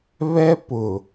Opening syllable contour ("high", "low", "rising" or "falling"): high